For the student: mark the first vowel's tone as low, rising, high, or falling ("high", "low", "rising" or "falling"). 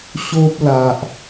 high